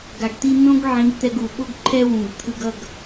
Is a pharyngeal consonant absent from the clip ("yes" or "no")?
no